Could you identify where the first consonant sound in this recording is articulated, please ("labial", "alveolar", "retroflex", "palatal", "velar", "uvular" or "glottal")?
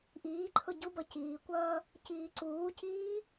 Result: glottal